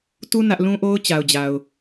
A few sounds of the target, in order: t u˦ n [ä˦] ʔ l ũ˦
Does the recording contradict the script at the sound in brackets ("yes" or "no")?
no